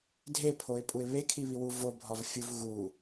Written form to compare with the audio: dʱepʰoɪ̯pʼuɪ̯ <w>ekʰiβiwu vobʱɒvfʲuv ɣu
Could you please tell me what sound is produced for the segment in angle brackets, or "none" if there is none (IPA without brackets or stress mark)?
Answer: β